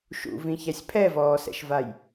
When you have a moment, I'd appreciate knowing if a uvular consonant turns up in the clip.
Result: no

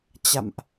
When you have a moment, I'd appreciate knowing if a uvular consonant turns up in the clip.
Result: no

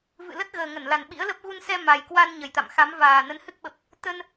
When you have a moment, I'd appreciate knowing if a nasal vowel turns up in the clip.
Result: no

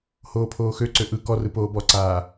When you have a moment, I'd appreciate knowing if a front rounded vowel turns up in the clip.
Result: yes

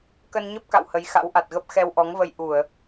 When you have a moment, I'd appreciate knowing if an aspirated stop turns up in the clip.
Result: no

